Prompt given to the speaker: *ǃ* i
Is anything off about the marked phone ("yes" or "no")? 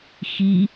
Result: yes